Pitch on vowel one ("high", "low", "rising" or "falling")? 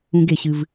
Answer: low